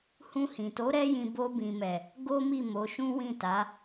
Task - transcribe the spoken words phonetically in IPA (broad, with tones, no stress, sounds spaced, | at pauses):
h ũ˧ h ĩ˨ t o˨˦ ɾ ɛ˦ j ĩ˧ b o˧ b ĩ˨ m ɛ˨ | ɡ o˦ m i˦˨ m o˨˦ ʃ ũ˦ w ĩ˦˨ t a˨˦